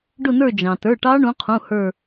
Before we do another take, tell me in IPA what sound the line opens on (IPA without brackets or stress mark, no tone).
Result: ɖ